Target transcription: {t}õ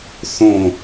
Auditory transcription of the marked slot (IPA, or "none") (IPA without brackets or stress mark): θ